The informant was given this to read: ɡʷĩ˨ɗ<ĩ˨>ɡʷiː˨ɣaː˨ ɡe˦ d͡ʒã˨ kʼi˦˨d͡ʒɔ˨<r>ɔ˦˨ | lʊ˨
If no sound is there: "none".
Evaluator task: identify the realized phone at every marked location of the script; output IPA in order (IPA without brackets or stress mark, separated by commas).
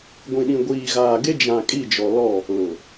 ĩ˨, l